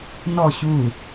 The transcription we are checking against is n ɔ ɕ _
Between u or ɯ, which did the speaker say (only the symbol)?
u